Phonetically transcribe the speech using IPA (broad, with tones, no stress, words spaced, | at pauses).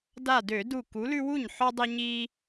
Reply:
da˧˩dø˧˩˧du˧˩ ku˨˥lʉ˦wu˥˩ɲħɔ˦ dˤi˦ ɲi˦